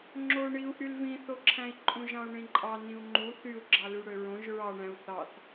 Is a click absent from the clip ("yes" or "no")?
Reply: no